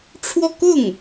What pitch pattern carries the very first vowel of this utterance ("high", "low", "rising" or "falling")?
falling